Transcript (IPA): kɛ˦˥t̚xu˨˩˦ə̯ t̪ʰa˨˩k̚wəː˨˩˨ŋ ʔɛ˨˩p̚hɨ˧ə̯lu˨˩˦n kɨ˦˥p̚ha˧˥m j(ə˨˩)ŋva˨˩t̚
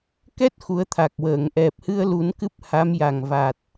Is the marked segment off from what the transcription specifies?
yes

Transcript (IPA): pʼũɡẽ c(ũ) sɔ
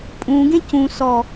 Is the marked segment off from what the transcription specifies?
no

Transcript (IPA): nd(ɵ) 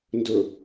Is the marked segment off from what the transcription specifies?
no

